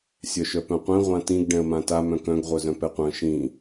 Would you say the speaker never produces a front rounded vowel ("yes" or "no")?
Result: no